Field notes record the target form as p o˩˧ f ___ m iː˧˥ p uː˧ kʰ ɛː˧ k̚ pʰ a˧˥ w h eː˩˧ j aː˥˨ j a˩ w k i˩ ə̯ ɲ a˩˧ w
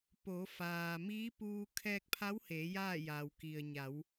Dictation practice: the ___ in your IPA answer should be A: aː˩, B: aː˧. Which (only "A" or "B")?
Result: A